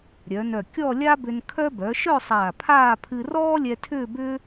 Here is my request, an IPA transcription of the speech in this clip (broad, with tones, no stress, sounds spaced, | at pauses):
ɾʲ œ˩˧ n œ˧˩ kʲ ɔ˥˧ lʲ a˥ b ʏ˧ n kʰ œ˥ b œ˩˧ ʃ œ˥˧ sˤ aː˧˩ pʰ aː˥˧ pʰ ɨ˧ r ɔː˥ lʲ ɛ˧ tʰ ʏː˥˧ b ʏ˥